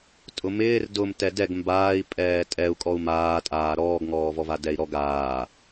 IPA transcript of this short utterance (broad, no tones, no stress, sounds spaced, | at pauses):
tʼ ʊ m ɪː r d ʊ m t ɛ d ɛ ɡ m b aː i̯ pʼ ɛː tʼ ɛ u̯ kʼ ɔ u̯ m aː tʼ aː ɾ ɔː ɡ ŋ ɔː v ɔ v a d ɛ i̯ ɾ ɔ ɡ aː